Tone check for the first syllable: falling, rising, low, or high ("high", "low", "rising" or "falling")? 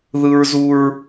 high